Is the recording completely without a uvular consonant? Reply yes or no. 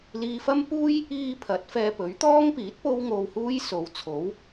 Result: yes